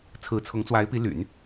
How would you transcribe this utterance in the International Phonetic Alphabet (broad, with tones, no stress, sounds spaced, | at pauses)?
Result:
t͡sʰ ɹ̩˧˥ t͡sʰ ʊ˧˥ ŋ t͡s w a˧˥ ɪ̯ p i˧˥ l y̰˨˩˦ n